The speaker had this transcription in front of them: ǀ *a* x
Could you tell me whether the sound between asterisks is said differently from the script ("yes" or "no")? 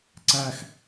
yes